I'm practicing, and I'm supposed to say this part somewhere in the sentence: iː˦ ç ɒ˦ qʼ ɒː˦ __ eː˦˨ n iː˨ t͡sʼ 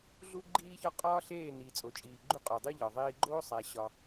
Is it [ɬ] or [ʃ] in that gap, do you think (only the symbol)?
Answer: ɬ